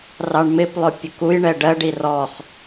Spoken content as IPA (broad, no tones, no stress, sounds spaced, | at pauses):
r ɑ ɳ m ɪ p lˠ ʊ pʲ ʊ k u j ɳ ɛ ɖ ɜ ɖ i r ɔ χ